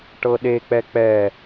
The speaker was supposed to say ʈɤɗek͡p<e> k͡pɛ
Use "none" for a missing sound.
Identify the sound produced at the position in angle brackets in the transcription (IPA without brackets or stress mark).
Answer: ɛ